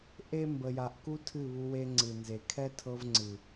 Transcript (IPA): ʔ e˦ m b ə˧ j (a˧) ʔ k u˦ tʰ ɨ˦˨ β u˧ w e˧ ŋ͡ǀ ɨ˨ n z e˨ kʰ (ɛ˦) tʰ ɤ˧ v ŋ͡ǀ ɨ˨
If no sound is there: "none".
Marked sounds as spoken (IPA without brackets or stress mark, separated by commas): a˧, ɛ˦